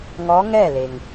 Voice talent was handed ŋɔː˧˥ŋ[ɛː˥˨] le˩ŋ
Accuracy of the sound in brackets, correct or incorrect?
correct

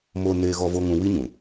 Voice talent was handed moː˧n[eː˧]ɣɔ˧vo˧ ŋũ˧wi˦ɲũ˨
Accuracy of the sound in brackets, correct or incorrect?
correct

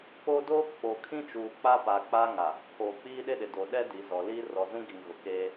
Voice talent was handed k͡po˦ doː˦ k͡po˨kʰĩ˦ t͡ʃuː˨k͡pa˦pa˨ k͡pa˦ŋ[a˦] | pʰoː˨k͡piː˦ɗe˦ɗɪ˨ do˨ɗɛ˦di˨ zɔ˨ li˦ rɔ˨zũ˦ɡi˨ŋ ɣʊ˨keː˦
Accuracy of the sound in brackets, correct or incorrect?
incorrect: a˨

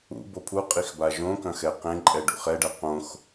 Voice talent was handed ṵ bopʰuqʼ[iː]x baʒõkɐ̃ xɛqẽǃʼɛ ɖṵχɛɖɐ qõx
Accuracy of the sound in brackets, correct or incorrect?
incorrect: i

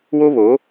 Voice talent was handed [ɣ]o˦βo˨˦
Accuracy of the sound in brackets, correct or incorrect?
incorrect: w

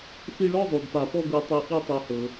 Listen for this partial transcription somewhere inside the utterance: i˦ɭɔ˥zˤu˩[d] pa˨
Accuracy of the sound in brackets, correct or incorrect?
correct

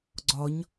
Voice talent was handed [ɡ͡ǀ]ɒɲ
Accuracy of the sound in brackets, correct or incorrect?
correct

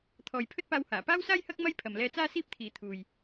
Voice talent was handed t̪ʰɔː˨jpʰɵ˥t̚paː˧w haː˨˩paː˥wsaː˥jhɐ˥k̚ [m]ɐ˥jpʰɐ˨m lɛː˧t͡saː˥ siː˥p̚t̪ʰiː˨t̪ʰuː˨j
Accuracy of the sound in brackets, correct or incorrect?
correct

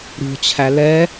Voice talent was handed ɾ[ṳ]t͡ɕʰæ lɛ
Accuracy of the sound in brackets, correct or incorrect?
correct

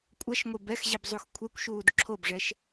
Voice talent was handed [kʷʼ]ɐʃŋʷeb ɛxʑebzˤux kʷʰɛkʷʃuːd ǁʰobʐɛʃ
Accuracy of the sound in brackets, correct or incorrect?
correct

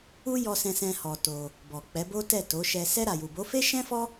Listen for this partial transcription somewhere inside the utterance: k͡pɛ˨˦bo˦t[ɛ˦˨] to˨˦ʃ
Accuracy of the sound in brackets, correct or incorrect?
correct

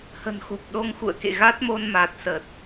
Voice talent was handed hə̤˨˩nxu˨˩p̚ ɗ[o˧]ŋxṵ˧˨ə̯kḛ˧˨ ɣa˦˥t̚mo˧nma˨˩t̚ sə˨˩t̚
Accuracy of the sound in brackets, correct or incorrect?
correct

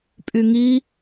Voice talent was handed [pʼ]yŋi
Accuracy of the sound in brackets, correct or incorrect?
correct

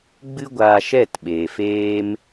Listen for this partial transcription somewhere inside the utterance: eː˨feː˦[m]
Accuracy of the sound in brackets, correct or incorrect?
correct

